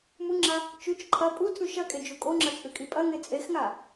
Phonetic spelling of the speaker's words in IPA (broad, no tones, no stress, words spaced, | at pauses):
muŋ͡ǁa | t͡ʃʉt͡ʃ ǃʰɐ pʼutʰʉ ʃɐkʼe d͡ʒukʼoŋ͡ǁɐ t͡sʼʉkʼipʼɐŋe t͡sʼexŋa